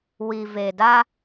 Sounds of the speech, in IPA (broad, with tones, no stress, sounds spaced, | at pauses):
w i˨ v e˨ d a˦